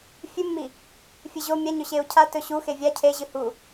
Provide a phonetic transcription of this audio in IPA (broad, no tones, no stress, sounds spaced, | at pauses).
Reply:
fʲ ʉ mː i | fʲ ɨ ʑ o mʲ a ɲ ɵ ɕ e u̯ cʰ a t ɵ ɕ u x e vʲ a cʰ e ʑ ɨ h u